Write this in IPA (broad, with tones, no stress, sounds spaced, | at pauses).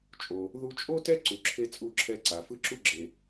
t͡ʃʼ o˩ | ð u˧ t͡ʃʼ o˥ t ɛ˥ ǀ u˩ ǁʰ e˧ t͡sʼ u˧ ǁʰ ɛ˧ ǀ a˩ f ɯ˥ ǁ u˥ ɡ͡ǁ e˩